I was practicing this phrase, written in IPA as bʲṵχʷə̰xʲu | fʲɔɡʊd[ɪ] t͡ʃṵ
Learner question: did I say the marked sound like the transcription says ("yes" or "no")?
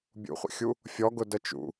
no